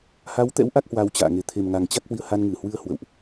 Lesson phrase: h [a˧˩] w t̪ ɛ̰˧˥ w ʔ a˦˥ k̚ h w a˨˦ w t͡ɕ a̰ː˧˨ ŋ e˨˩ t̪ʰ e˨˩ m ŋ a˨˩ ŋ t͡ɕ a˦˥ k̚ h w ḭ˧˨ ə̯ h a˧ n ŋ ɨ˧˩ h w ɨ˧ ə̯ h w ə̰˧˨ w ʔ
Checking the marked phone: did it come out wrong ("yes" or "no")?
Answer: yes